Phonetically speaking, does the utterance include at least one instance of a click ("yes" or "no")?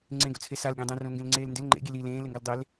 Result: yes